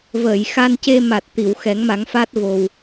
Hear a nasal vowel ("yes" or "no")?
no